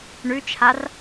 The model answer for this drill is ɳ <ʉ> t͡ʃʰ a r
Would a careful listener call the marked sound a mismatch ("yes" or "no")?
no